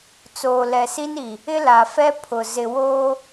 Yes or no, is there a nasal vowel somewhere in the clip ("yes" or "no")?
no